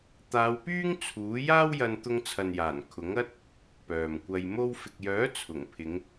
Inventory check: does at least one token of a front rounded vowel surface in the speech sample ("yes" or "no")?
yes